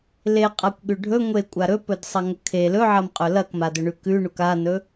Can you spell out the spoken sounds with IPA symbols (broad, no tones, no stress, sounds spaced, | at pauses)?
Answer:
l e qʼ a kʷ ɠ ʉ ɖʱ ɵ ŋʷ e kʷʼ a ɾ ɵ p ɵ d sˤ ɐ ŋ ɵ kʰ e l ɵ ʕ ɐ m qʼ ɵ l ɐ k m a d ɵ ɳ ʉ k ʉ ɳ u k a n ɵ